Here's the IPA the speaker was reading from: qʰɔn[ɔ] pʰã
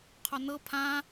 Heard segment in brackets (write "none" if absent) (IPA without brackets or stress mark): ɤ